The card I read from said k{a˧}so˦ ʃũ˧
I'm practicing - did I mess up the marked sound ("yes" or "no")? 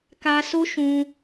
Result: no